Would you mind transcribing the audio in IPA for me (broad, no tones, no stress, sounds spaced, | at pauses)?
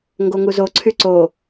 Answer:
ŋ ɡ o ŋ u z o ǀʰ y ǀ o